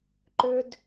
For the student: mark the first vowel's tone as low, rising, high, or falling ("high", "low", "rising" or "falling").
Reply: high